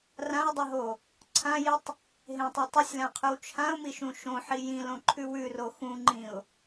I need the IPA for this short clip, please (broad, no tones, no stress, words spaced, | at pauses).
rãɪ̯dˤiɦo | ǀʰãjitˤ | ɦẽtˤe tˤʉsʲlãqʰʉw t͡ʃʰãʊ̯miʃũ ʃõħi jĩlõǃʰʉw ʉro xũŋ͡ǃĩʊ̯